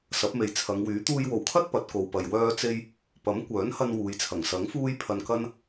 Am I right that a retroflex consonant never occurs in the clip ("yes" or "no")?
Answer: yes